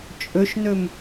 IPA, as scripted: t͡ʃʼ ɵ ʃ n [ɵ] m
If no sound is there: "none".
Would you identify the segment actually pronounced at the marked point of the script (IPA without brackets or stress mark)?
ɵ